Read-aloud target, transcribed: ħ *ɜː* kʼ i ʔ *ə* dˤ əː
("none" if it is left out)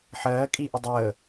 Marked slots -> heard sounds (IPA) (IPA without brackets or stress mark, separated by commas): ɜː, ə